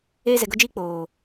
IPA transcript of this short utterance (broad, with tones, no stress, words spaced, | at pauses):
eː˦zɛ˧ɡo˦d͡ʒiː˦ k͡poː˨